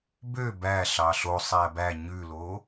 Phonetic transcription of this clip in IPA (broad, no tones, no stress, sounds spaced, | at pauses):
b ø b æ ɬ ɑ ɬ o sˤ æ b æ ɲ ʉ l o